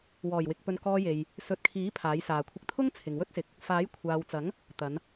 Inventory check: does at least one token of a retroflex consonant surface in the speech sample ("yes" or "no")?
no